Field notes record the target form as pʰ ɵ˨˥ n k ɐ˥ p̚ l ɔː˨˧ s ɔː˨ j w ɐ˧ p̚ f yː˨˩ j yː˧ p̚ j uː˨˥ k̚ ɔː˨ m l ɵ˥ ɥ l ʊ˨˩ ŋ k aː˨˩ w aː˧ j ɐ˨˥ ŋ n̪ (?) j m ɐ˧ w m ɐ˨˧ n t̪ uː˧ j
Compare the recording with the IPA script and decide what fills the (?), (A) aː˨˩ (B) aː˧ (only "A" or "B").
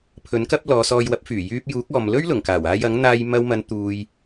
B